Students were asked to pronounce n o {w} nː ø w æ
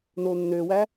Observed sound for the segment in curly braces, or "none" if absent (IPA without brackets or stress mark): none